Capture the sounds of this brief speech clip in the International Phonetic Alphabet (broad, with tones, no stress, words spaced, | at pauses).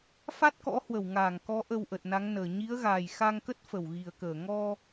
fa˦˥t̚kɔ̰˧˥ hwə˧˩wŋaː˧˩ŋkɔ˨˦ ʔə˧wʔə˨˩t̚na˨˦ŋnəː˨˩ ɲi˨˦ə̯ɣaː˨˩jxa˧ŋkə˦˥t̚ fə˧˩wɣi˨˩ə̯kəː˧˩ ŋɔ˧